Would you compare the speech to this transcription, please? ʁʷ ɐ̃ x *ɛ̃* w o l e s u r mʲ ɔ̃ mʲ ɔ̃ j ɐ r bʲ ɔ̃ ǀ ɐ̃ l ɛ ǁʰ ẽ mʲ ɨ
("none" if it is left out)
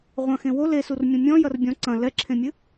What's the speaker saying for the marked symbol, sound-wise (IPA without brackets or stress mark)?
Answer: ẽ